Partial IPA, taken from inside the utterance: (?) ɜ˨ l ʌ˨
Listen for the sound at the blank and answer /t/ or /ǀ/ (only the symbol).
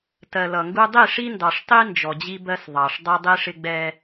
t